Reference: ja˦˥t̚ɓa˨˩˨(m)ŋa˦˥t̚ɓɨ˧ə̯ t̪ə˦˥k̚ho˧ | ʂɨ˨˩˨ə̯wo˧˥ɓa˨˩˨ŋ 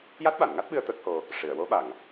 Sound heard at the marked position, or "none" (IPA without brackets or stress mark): n